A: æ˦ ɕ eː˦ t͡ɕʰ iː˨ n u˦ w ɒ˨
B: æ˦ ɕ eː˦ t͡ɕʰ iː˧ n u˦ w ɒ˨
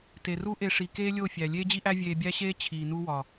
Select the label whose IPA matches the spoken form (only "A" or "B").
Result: A